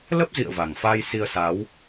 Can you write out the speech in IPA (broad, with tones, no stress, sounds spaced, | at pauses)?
l ə˦˥ p̚ z ḭ˧˨ ə̯ v a˨˩ ŋ f aː˧ j s i˧ ə̯ s a˨˦ w